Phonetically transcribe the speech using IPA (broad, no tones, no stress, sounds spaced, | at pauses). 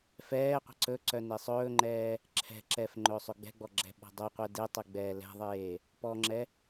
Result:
f ɛː qʷ ɛ̤ ǀ ɵ ǀ œ n e sˤ ɵː ŋ͡ǃ ɛː | ǁʰ ɛ̤ ǁ ɛ f ŋ͡ǃ ɵː sˤ ɵ ɡ͡b ɛ̤ ɡ͡b ɔ ɡ͡ǁ ɛ̤ ɓ ɔ̤ dˤ ɵ qʷ ɛ d e tˤ ɛ ɡ͡b ɛː l ɛ̤ ðˤ eː | p ɔ ŋ͡ǁ ɛ